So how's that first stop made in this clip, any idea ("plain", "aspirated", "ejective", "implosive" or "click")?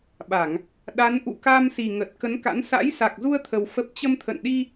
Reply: implosive